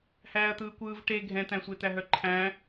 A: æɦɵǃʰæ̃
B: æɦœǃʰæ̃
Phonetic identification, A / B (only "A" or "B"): B